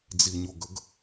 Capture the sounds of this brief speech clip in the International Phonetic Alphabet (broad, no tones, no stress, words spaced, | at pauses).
d͡ziɲoɡəɡ